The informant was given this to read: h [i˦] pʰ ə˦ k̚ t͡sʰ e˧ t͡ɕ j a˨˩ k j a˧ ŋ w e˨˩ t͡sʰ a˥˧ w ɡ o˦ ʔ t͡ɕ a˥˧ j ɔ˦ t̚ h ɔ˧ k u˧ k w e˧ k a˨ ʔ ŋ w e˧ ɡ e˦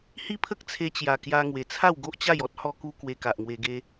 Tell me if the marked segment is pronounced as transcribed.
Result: yes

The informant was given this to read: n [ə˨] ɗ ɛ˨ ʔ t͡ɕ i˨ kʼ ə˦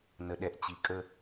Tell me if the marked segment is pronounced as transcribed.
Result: yes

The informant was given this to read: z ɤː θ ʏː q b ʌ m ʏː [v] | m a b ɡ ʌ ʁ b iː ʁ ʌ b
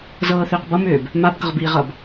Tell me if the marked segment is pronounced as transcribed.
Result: no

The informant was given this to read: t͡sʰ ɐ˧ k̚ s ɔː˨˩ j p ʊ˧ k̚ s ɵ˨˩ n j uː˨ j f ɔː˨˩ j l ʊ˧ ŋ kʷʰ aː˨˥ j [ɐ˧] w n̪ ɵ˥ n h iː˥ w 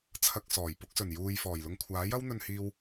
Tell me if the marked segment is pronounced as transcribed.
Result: no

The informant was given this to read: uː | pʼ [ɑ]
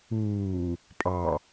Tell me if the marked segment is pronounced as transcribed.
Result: yes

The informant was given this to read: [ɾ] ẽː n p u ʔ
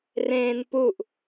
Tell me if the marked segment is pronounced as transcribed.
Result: no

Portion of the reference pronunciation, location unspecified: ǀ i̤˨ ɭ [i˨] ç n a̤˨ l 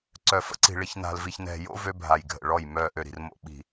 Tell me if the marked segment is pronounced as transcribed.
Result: yes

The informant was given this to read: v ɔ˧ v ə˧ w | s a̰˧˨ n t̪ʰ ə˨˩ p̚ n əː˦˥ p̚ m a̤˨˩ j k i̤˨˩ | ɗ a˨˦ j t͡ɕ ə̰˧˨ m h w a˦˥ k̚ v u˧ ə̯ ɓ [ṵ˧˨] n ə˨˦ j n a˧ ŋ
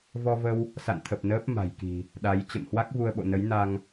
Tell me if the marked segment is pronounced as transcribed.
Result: no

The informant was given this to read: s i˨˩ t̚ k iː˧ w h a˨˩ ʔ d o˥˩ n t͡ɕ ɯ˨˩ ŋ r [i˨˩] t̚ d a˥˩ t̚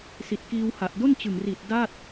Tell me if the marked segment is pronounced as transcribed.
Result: yes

